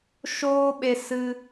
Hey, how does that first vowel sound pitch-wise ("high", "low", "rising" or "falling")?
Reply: high